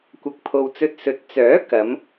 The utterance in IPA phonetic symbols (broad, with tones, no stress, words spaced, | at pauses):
kʷɐ˨k̚pʰo˨w t͡sɵ˧t̚sɵ˨t̚ t͡sœː˨˥ kɐ˨˧m